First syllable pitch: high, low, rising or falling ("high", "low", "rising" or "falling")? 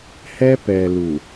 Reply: high